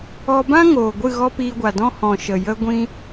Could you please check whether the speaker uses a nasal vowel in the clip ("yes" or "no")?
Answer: yes